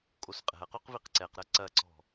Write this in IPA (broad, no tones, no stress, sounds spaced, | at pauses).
kʼ o s qʼ ɛ̤ ɐ̯ q o q v i q ǀ ɛ q ɾ ɐ ǀ ɐ ǀ ɔ̤